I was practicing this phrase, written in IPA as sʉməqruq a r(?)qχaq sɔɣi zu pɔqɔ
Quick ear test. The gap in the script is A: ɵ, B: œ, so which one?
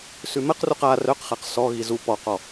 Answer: B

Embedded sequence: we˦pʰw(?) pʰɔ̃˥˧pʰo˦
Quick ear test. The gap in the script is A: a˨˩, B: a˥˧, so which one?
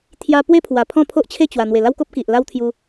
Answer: A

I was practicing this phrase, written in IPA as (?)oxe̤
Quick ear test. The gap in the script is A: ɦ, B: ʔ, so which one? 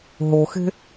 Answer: A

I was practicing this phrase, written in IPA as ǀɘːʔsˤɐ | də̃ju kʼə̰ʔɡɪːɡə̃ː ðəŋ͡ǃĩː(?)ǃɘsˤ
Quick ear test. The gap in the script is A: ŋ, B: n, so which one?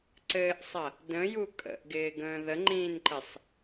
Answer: B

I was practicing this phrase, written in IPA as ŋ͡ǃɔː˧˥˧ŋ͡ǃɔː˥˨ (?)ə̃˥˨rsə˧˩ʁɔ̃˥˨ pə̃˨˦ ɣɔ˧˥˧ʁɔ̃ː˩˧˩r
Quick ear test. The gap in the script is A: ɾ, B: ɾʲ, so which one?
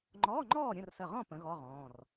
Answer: B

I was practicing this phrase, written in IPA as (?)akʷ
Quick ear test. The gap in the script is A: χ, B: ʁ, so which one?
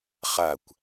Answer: A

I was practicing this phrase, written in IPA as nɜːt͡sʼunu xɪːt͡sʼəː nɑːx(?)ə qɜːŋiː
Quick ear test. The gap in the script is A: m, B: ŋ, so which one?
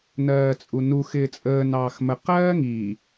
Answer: A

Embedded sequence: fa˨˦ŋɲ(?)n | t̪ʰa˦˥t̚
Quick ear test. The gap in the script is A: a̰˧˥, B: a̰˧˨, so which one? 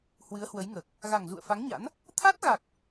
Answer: A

